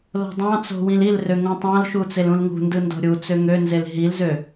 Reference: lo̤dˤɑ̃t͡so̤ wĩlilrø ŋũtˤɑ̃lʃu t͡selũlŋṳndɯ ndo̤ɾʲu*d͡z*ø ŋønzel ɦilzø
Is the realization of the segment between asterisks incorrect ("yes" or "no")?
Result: yes